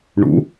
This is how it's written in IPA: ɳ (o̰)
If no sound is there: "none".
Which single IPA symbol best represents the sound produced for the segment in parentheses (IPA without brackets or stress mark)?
ṵ